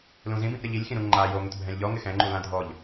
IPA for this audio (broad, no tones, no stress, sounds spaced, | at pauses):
l ũ z ĩ b ĩ ʔ ɾ ɪ ʎ i lʲ x ĩ ɾ ũ ŋ͡ǃ a j o ŋ ʊ t bʱ ɛ̃ lʲ ʎ ɔ ŋ ɪ x ɛ̃ ŋ͡ǃ u l ã dʱ ɔ ʎ